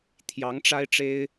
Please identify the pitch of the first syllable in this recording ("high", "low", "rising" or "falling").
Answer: rising